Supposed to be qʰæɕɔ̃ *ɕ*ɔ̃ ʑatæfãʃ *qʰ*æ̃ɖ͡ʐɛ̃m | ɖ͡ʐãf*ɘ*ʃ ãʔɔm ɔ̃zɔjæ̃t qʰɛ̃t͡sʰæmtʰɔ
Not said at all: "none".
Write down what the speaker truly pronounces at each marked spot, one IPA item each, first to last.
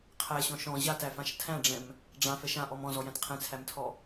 ʃ, tʰ, ɛ

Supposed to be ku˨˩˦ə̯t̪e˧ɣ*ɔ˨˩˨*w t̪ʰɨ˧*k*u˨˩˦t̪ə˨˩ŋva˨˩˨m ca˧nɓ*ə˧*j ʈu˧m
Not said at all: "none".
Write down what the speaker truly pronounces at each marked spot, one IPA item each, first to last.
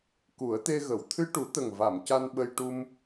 ə˨˩˨, ʈ, ə˧

